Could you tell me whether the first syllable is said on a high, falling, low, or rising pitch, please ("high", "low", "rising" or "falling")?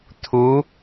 rising